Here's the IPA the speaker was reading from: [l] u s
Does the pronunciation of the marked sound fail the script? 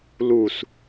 no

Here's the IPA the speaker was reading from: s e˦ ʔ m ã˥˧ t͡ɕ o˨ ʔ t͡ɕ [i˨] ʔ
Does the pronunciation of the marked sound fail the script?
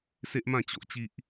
yes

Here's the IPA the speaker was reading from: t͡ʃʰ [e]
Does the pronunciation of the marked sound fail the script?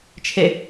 no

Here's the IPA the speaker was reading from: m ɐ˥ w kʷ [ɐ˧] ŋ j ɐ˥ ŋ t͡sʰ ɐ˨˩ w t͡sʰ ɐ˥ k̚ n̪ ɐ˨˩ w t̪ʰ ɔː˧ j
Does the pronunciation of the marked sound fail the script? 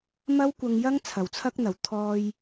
no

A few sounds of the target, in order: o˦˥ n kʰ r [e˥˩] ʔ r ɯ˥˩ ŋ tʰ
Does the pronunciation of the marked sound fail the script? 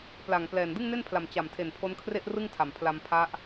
no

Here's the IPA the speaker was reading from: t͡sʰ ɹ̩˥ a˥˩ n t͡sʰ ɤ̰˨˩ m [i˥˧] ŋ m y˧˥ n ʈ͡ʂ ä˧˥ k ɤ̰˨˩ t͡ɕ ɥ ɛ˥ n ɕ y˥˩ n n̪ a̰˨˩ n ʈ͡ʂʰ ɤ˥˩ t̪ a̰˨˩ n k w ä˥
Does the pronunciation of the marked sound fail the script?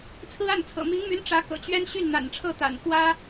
yes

